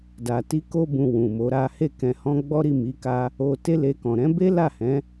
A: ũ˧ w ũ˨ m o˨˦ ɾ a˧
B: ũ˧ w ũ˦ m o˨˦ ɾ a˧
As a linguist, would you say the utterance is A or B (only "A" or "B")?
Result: A